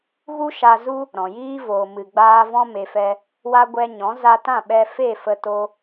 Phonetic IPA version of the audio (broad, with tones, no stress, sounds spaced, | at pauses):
ɣ u˦ ʃ a˧ z u˦ | ɾ ɔ̃˨ j iː˦ v oː˨ m ɨ˨ ɡ͡b aː˧ v ɔ̃˧ m e˨ f ɛ˧ | w a˧ ɡʷ ɛ˧ ɲ ɔ̃˨˦ z a˧ t ã˦˨ ɓ ɛ˧ f e˦˨ f ə˧ t o˦